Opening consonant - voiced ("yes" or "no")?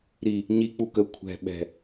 yes